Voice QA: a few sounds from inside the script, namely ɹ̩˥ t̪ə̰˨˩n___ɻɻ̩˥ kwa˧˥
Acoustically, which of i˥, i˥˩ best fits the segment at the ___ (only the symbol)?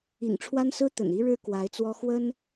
i˥